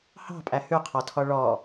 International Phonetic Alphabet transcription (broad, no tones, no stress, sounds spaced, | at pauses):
h ɑ̤ pʼ æ h ʉ qʰ ɔ tʰ ɔ ɭ ɔ